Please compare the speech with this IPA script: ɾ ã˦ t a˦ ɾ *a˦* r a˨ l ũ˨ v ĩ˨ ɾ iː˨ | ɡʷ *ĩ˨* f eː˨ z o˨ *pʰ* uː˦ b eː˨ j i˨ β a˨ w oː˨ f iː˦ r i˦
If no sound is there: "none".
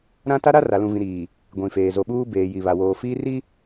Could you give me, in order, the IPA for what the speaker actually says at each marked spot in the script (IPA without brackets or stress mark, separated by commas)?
a˦, ĩ˨, ɓ